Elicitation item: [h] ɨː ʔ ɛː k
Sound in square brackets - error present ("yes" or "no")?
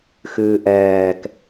yes